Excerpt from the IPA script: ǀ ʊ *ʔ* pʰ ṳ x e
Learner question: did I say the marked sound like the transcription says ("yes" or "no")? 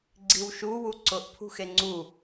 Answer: yes